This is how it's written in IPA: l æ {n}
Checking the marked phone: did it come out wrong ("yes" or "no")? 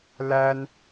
no